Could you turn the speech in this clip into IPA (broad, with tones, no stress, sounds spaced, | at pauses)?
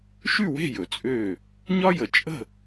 ʃ ʉ˥˨ w e̤˥˨ j ɵ˩ t͡sʼ ø˧˩ | ɲ ɒ˥ j ə˩ t͡ʃʼ ə̤˥˨